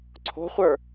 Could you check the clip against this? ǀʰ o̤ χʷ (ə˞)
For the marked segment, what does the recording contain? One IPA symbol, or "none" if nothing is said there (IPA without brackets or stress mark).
ə˞